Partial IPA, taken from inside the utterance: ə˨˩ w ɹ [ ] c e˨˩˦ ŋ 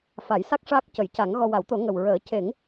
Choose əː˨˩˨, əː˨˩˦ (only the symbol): əː˨˩˦